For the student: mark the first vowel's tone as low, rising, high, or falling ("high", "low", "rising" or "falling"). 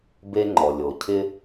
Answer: high